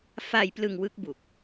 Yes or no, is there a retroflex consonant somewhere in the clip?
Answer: no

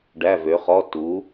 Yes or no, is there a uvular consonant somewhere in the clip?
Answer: yes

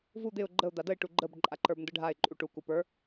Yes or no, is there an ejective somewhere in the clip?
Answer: yes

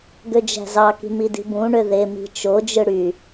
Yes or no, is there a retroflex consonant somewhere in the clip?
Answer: yes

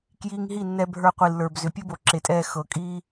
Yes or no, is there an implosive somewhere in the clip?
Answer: no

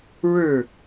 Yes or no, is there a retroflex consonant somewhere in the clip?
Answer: yes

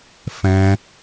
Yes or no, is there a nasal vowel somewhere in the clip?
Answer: yes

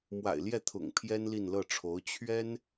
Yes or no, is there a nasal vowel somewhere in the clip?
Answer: no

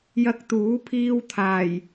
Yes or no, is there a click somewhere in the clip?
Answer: no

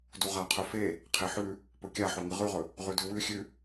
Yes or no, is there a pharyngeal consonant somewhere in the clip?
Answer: yes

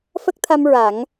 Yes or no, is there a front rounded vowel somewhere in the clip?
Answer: no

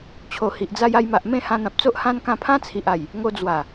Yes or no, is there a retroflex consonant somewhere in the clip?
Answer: no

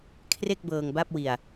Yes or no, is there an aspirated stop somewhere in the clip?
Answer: yes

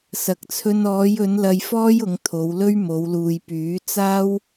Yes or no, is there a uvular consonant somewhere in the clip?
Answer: no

